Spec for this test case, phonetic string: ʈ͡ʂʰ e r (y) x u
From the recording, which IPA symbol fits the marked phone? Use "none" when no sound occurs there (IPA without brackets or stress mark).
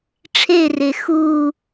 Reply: e